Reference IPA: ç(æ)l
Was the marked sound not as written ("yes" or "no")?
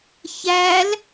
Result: no